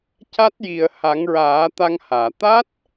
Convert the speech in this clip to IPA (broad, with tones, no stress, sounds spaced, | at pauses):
c a˦˥ t̚ j i˨˩ ə̯ h a˨˩˦ ŋ ɹ aː˨˩˦ t̪ a˧ ŋ h aː˨˩˨ t̪ a˦˥ t̚